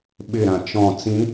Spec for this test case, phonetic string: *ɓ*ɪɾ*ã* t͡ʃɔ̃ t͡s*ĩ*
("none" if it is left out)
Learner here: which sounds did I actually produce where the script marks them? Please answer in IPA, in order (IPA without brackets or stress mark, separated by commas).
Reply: ɓ, ã, ĩ